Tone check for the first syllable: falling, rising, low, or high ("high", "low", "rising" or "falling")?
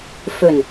low